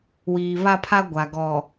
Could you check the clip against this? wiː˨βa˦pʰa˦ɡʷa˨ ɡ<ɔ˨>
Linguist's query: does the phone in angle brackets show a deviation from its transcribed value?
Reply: no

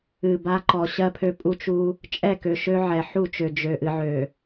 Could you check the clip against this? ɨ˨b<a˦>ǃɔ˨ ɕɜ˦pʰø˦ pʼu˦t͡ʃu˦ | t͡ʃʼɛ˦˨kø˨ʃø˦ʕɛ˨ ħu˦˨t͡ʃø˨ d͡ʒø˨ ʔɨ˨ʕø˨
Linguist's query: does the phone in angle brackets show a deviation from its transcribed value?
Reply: no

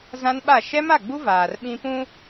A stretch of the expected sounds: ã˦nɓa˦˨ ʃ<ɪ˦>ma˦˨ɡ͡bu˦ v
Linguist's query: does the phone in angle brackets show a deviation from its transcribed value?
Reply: yes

